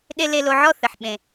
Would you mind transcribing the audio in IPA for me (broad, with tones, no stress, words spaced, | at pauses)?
ɗe˥ le˧lo˧ʕɔ˥ θɘ˩ħɓẽ˩